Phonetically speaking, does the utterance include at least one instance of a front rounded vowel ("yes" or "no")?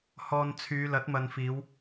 yes